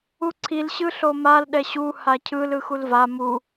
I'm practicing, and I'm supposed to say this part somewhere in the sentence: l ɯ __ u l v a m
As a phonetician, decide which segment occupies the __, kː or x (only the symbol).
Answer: x